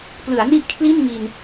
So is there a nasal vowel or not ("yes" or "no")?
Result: no